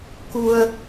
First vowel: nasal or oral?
oral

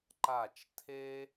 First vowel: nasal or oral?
oral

